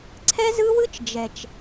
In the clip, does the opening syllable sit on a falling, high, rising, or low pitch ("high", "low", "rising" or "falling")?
high